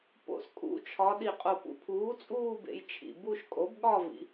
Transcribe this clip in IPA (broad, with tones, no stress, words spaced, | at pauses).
po̰˨˩skʼṵ˩˥t͡ʃʰɒ˩˧ ɗi˨˩qʼo˨˩ pṵ˧pʰuː˩˥t͡sʼuː˥˧bḛ˩˧j t͡ʃʰḭ˨˩ bu˥˧ʃ kʼo˩˥bɠɒ˥˧vḭ˩˧